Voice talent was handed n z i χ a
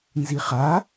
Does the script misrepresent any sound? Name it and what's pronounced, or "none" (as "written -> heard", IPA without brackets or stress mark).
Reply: none